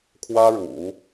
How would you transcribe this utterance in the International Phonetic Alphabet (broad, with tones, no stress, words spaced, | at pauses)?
kʰwä˥ɻṵ˨˩˦